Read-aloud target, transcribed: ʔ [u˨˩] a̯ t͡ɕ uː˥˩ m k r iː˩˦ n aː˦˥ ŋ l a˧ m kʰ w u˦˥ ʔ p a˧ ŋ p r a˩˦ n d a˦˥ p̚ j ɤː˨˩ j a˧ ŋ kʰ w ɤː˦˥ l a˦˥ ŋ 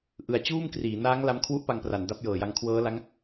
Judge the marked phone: incorrect: ɯ˨˩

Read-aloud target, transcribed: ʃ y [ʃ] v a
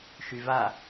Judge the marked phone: incorrect: none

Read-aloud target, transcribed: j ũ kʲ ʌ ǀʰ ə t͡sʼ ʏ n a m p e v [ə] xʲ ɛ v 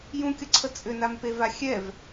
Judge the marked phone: incorrect: a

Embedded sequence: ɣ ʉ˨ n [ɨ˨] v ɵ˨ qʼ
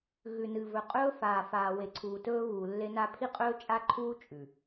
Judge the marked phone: correct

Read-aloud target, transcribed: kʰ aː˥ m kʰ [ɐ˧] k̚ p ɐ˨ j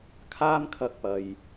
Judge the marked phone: correct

